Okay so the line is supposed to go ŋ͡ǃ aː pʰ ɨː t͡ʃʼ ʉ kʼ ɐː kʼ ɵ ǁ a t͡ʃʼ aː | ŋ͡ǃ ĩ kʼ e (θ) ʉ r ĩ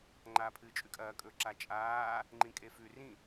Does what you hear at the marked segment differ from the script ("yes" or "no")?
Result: yes